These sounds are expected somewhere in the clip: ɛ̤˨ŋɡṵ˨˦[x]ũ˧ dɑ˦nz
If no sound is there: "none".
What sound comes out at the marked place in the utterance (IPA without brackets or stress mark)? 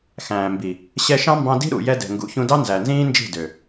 ç